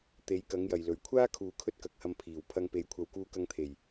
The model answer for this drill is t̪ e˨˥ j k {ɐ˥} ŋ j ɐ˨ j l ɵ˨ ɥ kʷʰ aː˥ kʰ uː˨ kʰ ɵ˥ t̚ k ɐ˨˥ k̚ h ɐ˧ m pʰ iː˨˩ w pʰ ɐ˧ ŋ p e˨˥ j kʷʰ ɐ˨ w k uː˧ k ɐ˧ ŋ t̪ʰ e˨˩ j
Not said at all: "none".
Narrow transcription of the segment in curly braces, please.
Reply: ɐ˨˥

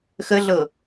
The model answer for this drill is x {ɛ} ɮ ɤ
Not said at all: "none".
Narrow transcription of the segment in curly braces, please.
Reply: ə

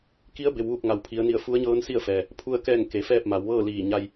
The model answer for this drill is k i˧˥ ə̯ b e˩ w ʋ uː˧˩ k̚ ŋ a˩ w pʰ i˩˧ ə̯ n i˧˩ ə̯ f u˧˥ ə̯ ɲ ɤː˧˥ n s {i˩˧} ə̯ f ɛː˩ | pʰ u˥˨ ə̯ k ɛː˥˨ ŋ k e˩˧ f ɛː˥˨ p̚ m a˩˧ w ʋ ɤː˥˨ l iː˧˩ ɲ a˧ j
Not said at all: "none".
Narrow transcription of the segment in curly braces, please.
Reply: i˥˨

